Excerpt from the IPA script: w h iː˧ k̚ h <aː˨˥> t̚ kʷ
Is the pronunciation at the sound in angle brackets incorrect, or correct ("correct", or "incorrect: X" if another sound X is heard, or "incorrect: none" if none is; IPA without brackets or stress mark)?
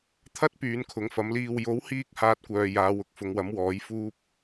incorrect: aː˧